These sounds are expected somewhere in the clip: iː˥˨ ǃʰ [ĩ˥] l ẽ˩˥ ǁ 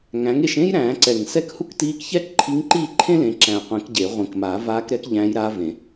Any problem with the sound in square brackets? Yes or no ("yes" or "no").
yes